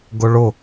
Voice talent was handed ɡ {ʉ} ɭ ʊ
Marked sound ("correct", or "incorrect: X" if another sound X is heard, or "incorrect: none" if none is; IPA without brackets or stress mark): incorrect: ʊ